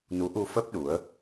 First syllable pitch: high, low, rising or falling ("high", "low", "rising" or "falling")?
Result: rising